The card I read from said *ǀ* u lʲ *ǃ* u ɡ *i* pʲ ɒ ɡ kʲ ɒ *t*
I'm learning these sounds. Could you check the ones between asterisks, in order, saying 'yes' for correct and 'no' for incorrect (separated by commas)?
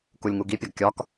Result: no, no, yes, no